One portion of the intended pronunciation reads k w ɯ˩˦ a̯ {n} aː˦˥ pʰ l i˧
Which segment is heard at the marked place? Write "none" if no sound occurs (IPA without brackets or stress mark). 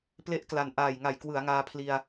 ŋ